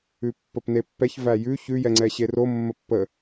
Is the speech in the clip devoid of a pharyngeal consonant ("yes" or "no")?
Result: yes